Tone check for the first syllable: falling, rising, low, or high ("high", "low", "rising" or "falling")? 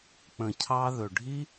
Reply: low